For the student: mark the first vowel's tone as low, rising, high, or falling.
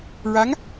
rising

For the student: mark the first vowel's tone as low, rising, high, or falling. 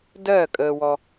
falling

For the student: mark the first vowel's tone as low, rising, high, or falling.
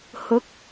rising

